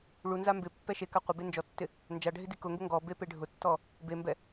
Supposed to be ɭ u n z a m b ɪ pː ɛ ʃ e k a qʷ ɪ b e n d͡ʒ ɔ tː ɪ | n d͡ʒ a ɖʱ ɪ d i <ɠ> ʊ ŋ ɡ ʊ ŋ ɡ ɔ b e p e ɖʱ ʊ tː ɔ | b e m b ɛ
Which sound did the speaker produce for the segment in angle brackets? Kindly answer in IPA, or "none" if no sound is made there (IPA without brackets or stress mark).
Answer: k